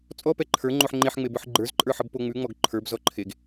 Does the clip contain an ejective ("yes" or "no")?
yes